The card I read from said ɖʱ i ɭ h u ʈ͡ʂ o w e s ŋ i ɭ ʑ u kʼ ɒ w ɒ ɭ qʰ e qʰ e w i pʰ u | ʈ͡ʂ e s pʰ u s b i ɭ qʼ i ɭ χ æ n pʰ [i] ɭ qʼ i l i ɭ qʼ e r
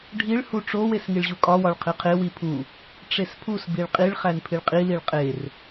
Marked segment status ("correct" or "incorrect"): correct